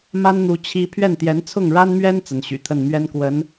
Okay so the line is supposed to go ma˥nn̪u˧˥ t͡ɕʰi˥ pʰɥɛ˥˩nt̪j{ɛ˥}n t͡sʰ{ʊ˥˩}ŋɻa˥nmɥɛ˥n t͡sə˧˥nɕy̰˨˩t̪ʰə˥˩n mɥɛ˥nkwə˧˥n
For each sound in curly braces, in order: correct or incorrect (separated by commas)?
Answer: incorrect, correct